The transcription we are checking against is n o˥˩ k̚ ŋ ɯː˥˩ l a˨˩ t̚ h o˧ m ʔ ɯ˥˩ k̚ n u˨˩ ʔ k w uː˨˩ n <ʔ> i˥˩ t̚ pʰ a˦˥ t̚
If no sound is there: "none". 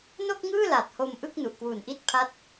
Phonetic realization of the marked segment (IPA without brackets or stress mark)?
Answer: ʔ